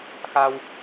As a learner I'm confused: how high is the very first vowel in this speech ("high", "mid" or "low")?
low